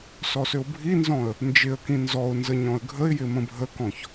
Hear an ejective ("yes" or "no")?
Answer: no